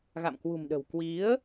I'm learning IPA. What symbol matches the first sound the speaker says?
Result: ɣ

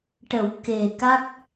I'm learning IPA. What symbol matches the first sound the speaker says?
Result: ʈ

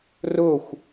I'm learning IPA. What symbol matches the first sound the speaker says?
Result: r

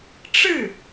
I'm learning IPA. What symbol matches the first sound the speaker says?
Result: ʈ͡ʂ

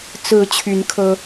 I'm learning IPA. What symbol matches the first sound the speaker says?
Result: t͡s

